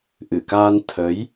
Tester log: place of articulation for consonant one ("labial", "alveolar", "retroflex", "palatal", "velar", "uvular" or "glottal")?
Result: glottal